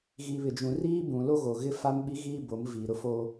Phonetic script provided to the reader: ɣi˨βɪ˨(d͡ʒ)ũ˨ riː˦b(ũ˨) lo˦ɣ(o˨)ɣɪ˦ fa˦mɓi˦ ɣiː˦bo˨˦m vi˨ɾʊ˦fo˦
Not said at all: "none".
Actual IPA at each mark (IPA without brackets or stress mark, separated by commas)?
d͡ʒ, ũ˨, o˨